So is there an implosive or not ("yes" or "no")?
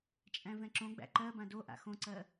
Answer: no